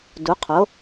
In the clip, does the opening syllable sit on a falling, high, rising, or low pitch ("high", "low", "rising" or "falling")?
rising